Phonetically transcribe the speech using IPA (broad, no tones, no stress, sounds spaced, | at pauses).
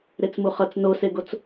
ɾ e t͡s m u χ ʌ t͡s n o s e ɡ o t͡s